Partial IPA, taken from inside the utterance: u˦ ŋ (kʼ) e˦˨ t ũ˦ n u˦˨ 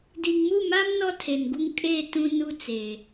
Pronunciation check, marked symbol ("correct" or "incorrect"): correct